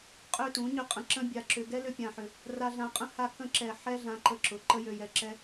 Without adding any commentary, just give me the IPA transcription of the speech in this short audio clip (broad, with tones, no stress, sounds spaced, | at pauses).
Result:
qʼ ø˦ t ũ˨˦ ɲ ʏ˦ qʼ ə̃˧ ǁ ə̃˦ bʲ a˧ ǁ ʏ˧ ɡ ɛ˦ l ʏ˦ pʲ ã˧ ħ ʏ˧ | r a˧ ɮ ã˧ qʼ ə̃˦ h a˧ k ə̃˧ ǁ ɛ˨ ħ ɛ˦ ɮ ã˧ ǃ ə˧ ǁ ʊ˧ ǃ ə˦ j ø˧ j ɛ˧ ǁ ɛ˦